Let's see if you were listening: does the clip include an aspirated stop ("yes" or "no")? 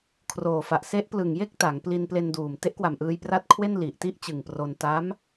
yes